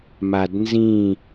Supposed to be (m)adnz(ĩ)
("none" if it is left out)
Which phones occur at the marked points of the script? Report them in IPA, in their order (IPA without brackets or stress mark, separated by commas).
m, ĩ